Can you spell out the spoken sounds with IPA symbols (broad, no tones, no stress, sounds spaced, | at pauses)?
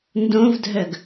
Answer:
n d õ v dʱ œ ɡ